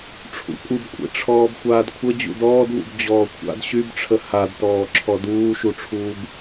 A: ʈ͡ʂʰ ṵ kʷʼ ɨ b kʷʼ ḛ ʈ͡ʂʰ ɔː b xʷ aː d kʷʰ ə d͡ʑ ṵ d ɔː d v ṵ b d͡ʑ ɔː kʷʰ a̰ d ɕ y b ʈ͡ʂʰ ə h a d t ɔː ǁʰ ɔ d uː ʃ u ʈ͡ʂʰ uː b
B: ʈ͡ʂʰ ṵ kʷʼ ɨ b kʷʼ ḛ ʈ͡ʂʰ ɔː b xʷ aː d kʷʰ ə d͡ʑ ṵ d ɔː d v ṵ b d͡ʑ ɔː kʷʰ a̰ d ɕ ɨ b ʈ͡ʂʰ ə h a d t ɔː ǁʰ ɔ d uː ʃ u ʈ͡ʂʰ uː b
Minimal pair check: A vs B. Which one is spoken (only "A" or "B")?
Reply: A